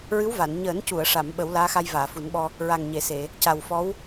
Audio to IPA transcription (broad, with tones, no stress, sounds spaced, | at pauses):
ɹ ɨ˧˥ w v a˨˩˨ n ɲ əː˨˩˦ n c u˨˩˨ ə̯ ʂ a˨˩˨ m ɓ ə˨˩˦ w l aː˧˥ x a˧ j v aː˨˩˨ f u˨˩˦ n ɓ ɔ˧ | ɹ a˨˩ ŋ ɲ e˨˩˨ s e˨˩˨ | c a˨˩ w f ɔ˧˥ w